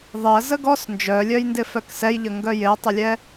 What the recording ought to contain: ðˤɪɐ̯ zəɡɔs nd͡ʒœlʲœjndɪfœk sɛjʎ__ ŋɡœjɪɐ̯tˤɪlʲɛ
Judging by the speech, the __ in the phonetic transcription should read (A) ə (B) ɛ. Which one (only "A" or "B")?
A